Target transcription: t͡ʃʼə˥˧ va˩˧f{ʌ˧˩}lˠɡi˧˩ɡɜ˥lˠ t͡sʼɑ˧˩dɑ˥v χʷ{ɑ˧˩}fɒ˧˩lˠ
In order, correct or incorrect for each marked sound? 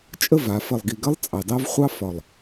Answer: incorrect, incorrect

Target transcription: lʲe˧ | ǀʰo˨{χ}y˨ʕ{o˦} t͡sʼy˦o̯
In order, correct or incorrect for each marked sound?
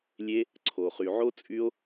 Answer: correct, correct

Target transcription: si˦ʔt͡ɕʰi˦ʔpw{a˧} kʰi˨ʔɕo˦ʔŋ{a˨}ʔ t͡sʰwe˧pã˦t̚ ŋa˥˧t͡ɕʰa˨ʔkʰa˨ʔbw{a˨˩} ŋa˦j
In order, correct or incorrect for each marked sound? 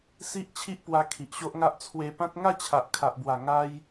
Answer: correct, incorrect, correct

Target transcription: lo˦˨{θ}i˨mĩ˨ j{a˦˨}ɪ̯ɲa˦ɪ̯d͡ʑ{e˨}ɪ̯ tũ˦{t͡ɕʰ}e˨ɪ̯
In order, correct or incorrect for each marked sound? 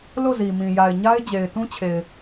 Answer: incorrect, incorrect, correct, correct

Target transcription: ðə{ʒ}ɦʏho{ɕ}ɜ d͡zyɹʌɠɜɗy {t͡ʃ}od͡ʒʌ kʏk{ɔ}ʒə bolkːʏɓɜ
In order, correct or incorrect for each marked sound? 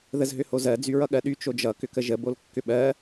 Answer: incorrect, incorrect, correct, incorrect

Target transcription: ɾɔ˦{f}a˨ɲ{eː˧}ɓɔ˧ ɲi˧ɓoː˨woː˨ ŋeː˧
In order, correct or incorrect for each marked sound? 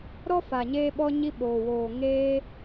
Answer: correct, correct

